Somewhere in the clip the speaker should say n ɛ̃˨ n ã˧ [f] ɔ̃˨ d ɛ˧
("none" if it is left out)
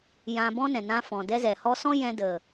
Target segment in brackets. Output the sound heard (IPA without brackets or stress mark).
f